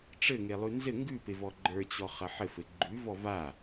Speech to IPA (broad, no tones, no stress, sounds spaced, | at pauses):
ʈ͡ʂ ɘ ŋ e lˠ ʉ n z ɘ ŋ ɡ ʉ p e v ɔ ɡ͡ǃ ə˞ t͡ɕ ɔ χ ɐ ħ ɘ f ɘ ɡ͡ǃ ʉ v ɔ v a